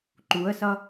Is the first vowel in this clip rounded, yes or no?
yes